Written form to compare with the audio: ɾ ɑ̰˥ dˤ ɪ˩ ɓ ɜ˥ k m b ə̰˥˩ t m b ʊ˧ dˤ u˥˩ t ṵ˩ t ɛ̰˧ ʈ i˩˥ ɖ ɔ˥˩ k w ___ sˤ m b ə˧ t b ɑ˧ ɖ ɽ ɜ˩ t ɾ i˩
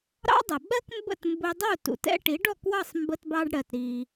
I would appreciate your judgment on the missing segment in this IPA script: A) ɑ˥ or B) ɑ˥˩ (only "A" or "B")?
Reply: B